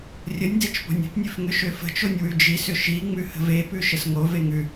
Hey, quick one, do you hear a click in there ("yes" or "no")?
no